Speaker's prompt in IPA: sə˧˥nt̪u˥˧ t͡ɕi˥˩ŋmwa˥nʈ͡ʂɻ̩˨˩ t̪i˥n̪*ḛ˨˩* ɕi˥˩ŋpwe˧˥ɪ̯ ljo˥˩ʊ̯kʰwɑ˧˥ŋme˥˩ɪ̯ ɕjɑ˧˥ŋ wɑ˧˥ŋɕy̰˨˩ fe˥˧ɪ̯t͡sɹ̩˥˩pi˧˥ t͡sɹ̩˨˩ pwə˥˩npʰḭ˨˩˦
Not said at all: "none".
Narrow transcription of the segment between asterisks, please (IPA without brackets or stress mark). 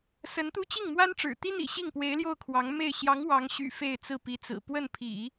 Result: ḭ˨˩